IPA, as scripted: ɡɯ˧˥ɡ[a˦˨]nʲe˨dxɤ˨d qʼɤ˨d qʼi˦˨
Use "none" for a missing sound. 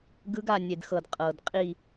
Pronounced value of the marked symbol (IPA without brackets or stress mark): a˦˨